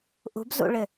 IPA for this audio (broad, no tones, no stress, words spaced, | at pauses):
ʔṳbzṵɭɪ